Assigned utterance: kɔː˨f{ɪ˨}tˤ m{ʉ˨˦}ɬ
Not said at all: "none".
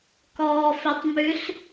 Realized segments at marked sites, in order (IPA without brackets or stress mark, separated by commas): ɪ˨, ʉ˨˦